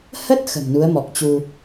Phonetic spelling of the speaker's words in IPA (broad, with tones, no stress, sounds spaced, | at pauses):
h ə˦˥ t̚ x ə̤˨˩ m n u˨˦ ə̯ m ɔ˨˩ k̚ t͡ɕ u˧